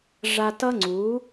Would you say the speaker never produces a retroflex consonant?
no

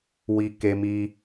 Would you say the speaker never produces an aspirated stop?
yes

